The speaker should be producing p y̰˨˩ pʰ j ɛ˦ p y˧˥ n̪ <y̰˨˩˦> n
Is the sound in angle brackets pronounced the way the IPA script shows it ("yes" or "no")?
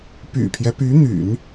yes